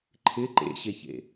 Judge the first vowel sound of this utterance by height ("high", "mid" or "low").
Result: high